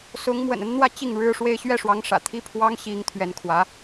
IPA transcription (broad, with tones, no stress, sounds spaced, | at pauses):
s ʊ˧˥ ŋ m w ə̰˨˩ n ə˥ n n̪ w ä˥ t͡ɕ i˥˩ ŋ ɻ ɻ̩˥ ʂ w e˥ ɪ̯ ɕ ɥ ɛ˥˩ ʂ w ɑ˧˥ ŋ ʂ ä̰˨˩ t̪ʰ i˥ pʰ w ɑ˥ ŋ ɕ i˧˥ ŋ t̪ʰ ɥ ɛ˧˥ n kʰ w ä˧˥